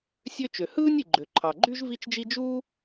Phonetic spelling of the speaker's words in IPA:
sʲ ø˥ t͡ʃ ø˩ h ɯː˥ nʲ i˩ ɡ͡ǃ ø˩ ǃʰ ɑ˩ ɡ͡ǃ y˥ ʒ v i˥ t͡ʃ d͡ʒ i˥ d͡ʒ uː˥

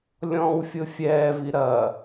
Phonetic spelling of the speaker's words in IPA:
lʲ ɔ̃ː w fʲ ʊ fʲ ɛː v i ɾ ɐ

